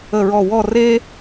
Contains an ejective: no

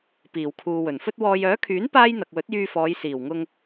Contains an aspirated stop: yes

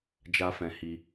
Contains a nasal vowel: yes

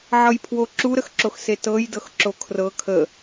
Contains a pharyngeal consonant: yes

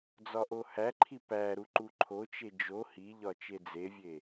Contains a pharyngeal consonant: no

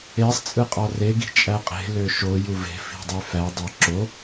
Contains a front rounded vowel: yes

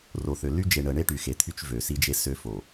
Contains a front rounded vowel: yes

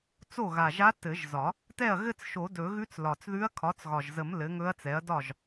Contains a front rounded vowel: no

